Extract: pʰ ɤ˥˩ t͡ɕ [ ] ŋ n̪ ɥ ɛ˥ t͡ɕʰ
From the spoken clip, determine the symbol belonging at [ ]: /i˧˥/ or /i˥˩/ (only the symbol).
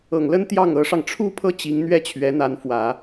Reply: i˧˥